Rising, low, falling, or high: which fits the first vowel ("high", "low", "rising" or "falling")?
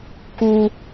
high